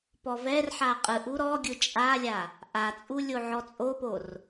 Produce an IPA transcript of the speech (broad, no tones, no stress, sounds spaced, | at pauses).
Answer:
p ɔ v ɛ r ħ a qʼ ɯ ʔ u ɾ ɔ ɡʲ ɯ t͡ʃʼ a lʲ a | ʔ a t͡sʼ u lʲ o ʕ ɔ t͡sʼ o p o r